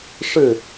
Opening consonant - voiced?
no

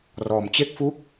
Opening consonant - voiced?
yes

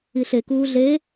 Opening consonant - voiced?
no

